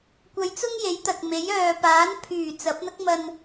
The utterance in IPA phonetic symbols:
kʷ ɐ˨˧ j t͡s ʊ˥ ŋ j e˨˥ j t̪ ɐ˨ k̚ m e˨˥ j œː˨ p aː˨˥ n pʰ yː˨˩ t͡s ɐ˨˥ p̚ n̪ ɐ˥ k̚ m ɐ˧ n

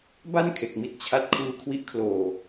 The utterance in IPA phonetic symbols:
b a˥˩ n kʰ e˨˩ k̚ m i˦˥ t̚ t͡ɕʰ a˦˥ t̚ kʰ uː˦˥ kʰ w i˦˥ ʔ kʰ l oː˧

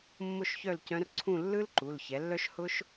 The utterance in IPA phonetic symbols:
mː ʊ˥˨ ʃ ç œ˥˨ l c œ̃˧˥ r ǀʰ ũ˥˨ lː ɯ˥ l ǃ u˩˧˩ l ç ɛ˩˥ lː œ˥ ʃ h ʊ˥ ʃ

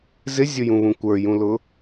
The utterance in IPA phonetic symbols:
z ɪ zʲ ʊ j ũ β ũ kʷ ə˞ j ũ l ʊ

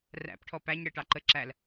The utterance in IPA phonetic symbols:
r æ̰ p ʈʰ ɔ p æ ɲ ɽ ɪ ʈ ɑ ǃ ə ǁ æ l

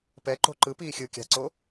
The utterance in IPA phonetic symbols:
p ɛ ǃ o̤ ǃ ɯ p iː xʲ ɯ kʲ a̤ ǀ o

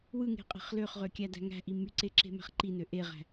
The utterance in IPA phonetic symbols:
w ɯ ŋ e̤ qʼ e̤ χ l ø χ ʁ ø kʲ æ d æ̤ ŋ æ̤ ʔ i m y ǀ e ǁ e̤ m æ̤ χ ǃ i n ø ʔ e ʁ æ̤

